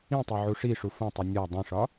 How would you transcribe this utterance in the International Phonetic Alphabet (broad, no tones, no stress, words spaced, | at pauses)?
ĩtˤo ʕuʂiʂu fõtˤi nʲɒ dˤĩʂɒ